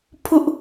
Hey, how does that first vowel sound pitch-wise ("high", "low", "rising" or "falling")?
high